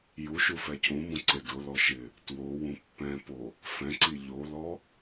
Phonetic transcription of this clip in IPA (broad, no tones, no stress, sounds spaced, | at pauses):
j u ʃ u f ɛ cʰ ũ m ũ ǀ e d ʊ l ɔ ʃ ɪ | t w o w ũ pː ɛ̃ p o | f ɛ̃ ǀ i ʎ o l ɔ